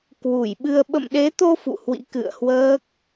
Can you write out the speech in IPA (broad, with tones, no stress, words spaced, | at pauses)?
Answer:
kwu˧˩jɓɨ˧ə̯ ɓə̰˧˨mɗe˨˦t̪o˧ fṵ˧˨hwḭ˧˥ kɨ̰˧˨ə̯hwəː˦˥k̚